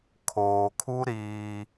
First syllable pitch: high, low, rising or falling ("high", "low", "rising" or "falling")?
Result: low